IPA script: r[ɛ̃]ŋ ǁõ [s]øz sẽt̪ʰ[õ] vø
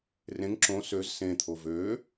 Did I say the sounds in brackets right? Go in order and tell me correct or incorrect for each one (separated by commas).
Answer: incorrect, correct, incorrect